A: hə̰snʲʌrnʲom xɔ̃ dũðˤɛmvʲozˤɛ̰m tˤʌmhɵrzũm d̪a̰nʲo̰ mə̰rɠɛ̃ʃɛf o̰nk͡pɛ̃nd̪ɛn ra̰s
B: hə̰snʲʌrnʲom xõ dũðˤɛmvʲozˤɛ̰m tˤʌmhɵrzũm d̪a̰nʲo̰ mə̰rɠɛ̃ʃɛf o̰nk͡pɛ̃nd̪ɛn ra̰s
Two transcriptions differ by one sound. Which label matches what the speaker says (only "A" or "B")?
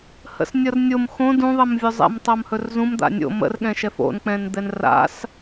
B